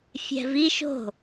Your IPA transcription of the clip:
fʲ ɛ̤ v i ʃ o̤

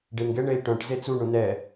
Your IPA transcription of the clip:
ɖ e n ɡ ɛ ɳ e i̯ ʈ œ̃ ʈ z e t͡s u ɳ ũ n ɛ

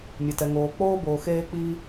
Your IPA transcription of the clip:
mʲ ɛ˧ t ɛ˧ ŋ oː˧ k͡p oː˥ b oː˧ x eː˥ k͡p i˥

